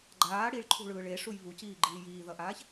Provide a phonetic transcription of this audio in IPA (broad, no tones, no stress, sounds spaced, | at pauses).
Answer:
ɡ͡ǃ aː ɽ i ɭ ǃʰ ṳ ɭ ɯː ɭ e ʂ u j β u c iː ɡ͡ǃ iː j iː ð ʌ ʔ aː ç